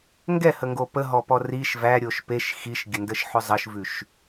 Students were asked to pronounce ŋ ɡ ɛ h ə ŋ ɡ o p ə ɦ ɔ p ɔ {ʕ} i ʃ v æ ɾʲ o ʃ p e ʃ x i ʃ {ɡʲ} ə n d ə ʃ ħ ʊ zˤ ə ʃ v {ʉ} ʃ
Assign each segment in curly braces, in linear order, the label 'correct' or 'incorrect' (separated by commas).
incorrect, correct, correct